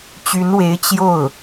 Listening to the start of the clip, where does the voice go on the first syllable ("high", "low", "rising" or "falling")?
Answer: rising